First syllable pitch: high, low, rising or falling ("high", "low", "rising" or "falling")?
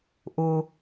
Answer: low